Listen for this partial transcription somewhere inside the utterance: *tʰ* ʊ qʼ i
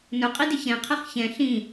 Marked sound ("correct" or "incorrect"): incorrect